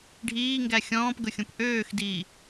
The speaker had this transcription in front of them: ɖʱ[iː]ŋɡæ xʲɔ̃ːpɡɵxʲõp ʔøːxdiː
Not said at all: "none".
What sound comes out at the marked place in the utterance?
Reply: iː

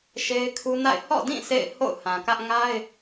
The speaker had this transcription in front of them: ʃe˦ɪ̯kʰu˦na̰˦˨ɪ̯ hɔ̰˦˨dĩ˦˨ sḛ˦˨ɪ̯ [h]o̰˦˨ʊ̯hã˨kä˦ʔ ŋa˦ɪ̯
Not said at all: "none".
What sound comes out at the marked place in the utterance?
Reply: h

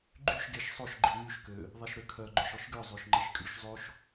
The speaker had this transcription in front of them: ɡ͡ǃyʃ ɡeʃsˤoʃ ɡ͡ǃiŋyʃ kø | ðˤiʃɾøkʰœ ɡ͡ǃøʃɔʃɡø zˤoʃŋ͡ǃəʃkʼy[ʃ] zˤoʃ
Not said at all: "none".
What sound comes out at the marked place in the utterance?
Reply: ʃ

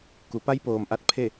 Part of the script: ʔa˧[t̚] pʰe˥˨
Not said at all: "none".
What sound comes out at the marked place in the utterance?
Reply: t̚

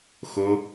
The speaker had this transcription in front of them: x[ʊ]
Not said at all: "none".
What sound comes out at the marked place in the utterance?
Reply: ʊ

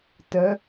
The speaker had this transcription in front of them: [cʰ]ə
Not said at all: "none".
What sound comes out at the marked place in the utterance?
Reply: t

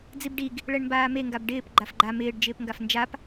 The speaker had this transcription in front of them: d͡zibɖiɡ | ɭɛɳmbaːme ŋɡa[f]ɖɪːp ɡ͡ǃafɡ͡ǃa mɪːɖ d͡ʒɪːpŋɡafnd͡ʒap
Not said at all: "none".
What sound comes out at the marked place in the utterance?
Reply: b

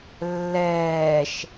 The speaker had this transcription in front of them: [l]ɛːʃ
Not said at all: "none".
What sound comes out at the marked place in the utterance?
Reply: lː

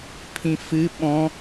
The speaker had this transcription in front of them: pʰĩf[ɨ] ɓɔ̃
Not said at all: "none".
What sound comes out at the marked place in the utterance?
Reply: ɨ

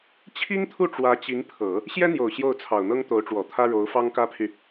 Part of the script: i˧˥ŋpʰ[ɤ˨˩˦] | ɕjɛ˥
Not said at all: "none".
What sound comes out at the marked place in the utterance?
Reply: ɤ˨˩˦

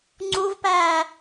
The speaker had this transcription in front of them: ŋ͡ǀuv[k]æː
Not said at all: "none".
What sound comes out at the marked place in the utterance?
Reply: p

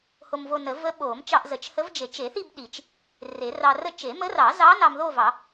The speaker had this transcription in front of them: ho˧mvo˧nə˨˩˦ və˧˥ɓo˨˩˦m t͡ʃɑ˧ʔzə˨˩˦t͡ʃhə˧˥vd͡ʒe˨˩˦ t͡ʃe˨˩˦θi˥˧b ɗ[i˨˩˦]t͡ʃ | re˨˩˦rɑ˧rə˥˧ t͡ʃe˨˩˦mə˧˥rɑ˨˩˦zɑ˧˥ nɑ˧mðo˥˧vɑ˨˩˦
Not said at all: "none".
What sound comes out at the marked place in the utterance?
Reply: i˨˩˦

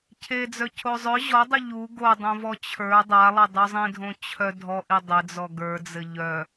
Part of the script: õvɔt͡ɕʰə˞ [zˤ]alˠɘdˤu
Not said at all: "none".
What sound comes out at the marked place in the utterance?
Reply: dˤ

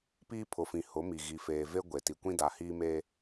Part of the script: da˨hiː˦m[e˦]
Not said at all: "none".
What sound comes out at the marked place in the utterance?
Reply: e˦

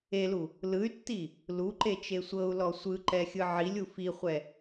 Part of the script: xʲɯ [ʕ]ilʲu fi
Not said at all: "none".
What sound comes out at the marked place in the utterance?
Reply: ʕ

